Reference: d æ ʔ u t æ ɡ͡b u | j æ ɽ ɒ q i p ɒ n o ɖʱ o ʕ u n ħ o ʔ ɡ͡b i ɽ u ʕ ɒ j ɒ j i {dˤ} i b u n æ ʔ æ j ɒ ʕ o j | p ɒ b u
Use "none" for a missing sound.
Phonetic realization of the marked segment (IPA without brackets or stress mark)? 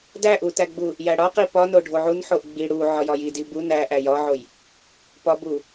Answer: d